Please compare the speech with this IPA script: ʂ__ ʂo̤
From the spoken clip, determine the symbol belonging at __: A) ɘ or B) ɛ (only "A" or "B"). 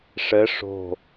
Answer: A